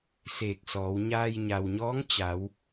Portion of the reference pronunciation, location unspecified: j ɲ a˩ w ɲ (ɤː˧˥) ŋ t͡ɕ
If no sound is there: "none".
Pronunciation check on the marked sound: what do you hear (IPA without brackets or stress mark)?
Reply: ɔː˧˥